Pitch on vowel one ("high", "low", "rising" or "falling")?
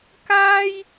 high